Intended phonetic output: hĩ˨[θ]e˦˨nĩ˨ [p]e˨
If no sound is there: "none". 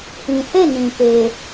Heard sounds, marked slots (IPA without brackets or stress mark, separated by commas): θ, p